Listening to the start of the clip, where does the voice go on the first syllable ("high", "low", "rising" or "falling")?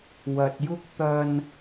low